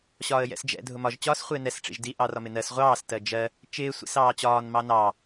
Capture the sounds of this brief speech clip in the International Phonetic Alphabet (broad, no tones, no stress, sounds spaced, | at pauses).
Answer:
ɕ ɒː ə̯ j ɛ̰ s d͡ʒ ɛ̰ dʱ ʊ m ɒ ʒ t͡ɕ ɒː s χʷ ɪː n ɛ s ʈ͡ʂ ḭ ʒ d i ʔ ɑ r ɒ m ɪ n ɜ s ʁʷ ɑː s t ɜ d͡ʒ ɜ | t͡ʃ ɪː sʷ ḭ s ɑː t͡ɕ ɒː n m ɑ n ɑ